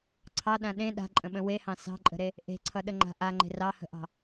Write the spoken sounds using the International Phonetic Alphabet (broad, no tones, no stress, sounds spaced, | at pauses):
ǀʰ ɑ ɗ ã ɗ ẽ ɗ a̤ ǃʼ ə̃ ɓ ə̃ w e h ɑ̃ s ɑ̤ ǃʼ ə̤ ɾ e | ʔ e̤ ǀʰ ʌ ɗ ə ŋ͡ǃ a̤ ʔ a ŋ͡ǃ e̤ r ɑ h ə̤ ʔ ɑ̤